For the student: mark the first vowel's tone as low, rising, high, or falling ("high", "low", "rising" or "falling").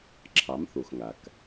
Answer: rising